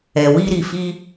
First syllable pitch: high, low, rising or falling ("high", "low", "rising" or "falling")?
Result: low